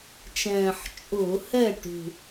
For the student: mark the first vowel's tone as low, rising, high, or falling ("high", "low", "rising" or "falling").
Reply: low